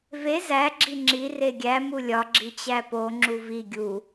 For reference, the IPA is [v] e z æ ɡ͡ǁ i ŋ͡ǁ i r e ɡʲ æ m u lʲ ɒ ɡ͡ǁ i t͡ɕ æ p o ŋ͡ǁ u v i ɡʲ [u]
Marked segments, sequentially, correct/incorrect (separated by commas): correct, correct